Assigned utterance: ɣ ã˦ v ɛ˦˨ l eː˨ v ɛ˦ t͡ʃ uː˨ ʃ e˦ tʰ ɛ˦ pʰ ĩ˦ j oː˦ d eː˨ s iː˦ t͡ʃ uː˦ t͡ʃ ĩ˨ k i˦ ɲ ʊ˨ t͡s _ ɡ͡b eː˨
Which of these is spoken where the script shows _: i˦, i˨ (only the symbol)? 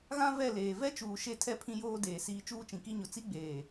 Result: i˦